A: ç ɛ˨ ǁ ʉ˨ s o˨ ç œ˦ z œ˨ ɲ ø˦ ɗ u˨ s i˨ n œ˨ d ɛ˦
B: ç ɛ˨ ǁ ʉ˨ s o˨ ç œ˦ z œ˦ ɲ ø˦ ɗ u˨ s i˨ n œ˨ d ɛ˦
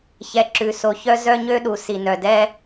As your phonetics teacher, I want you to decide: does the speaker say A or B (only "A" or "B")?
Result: B